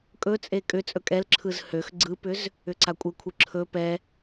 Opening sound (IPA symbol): kʼ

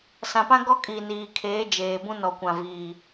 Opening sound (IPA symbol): s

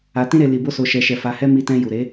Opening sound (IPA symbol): a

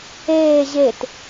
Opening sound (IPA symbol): eː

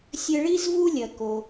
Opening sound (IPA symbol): sʲ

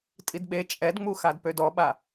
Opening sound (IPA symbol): tʼ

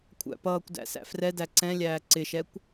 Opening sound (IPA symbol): kʷʰ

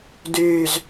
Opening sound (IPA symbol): d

